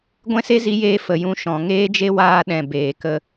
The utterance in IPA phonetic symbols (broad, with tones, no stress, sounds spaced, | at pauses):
ɡʷ ɛ̃˦ s e˦ z i˨˦ j eː˧ f ə˨ j ũ˧ ʃ ɔ̃˨ ŋ eː˦ d͡ʒ e˦ w aː˧ ɗ ɛ̃˨ b eː˨ k ə˧